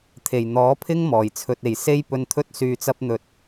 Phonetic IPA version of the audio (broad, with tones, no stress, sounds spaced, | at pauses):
t̪ʰ e˨˩ j n̪ ɔː˨˥ pʰ ɪ˥ ŋ m ɔː˨˩ j t͡sʰ ɵ˧ t̚ e˨ j s e˥ j p ɵ˧ n t̪ʰ ɵ˥ t̚ s yː˧ t͡s ɐ˥ p̚ n̪ ɵ˧ t̚